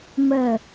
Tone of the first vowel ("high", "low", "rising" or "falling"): falling